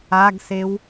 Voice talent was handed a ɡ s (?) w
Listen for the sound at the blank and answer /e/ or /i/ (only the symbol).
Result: e